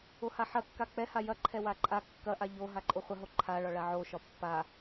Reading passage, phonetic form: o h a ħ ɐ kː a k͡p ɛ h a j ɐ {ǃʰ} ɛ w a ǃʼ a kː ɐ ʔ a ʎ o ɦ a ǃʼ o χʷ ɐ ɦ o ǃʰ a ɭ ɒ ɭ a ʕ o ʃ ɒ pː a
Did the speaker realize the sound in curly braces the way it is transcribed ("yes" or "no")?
yes